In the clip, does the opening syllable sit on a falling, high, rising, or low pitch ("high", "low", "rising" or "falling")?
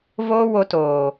high